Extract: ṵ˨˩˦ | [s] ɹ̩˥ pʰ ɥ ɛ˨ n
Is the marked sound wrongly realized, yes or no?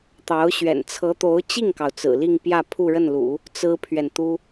yes